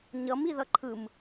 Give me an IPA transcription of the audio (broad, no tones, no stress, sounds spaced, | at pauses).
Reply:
ɲ ʌ m i ð ʌ ǃʰ ɯ m